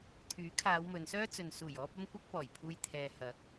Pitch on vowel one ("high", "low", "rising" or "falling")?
rising